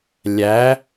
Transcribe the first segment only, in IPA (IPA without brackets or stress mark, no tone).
lʲ